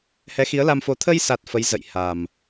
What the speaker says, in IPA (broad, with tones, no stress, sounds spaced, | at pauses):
h ɛ˨˦ x i˨˦ ə̯ l a˧ m f o˨˦ t̪ʰ ə˧ j s a˨˩ t̚ f ə˨˦ j z ə̰˧˨ j h a˨˩ m